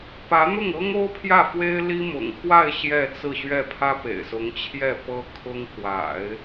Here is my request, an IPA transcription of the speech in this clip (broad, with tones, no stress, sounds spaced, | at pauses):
p ä˧˥ n̪ ʊ˥˩ ŋ ɤ˥ ŋ o˥ ʊ̯ pʰ j ä˥˩ f w e˥ ɪ̯ l i˥ m ʊ̰˨˩ ŋ x w a˥˧ ɪ̯ ɕ j ɛ˥˧ t͡s ɹ̩˥˧ ɕ ɥ ɛ˥˩ pʰ ä˥ p ḛ˨˩ ɪ̯ s ʊ˧˥ ŋ t͡ɕʰ j ɛ˥˩ p ɤ˥ kʰ ʊ˥ ŋ k w a̰˨˩˦ ɪ̯